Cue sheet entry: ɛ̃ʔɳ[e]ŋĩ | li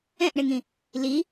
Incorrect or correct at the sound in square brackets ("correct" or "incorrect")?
correct